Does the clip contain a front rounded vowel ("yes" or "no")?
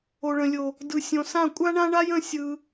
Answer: no